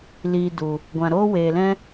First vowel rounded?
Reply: no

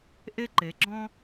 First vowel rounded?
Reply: no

